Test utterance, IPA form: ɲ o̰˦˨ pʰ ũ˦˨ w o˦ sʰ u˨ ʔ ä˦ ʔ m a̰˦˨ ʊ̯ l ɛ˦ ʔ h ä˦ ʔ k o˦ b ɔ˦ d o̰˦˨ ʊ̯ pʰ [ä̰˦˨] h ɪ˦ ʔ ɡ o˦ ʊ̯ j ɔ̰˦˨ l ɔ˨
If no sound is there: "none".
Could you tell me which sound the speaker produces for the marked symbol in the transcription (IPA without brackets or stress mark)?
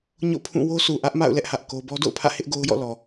ä̰˦˨